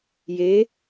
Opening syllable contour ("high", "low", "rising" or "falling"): rising